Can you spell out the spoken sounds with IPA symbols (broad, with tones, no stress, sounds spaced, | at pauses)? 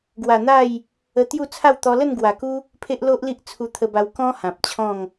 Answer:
ɡ w a˨˩ n̪ a˥˧ j | ə˧ t̪ j u˥˧ t͡sʰ a˥˧ w t̪ ɔ˧ l ə˥˧ n ɡ w a˨˩ k u˦ | pʰ e˦ ʔ l o˦ ʔ l i˦ ʔ t͡sʰ u˧ t̪ʰ ə˧ b a˧ w k ɔ̃˦ h ã˨ p̚ t͡ɕʰ ɔ̃˥˧ ŋ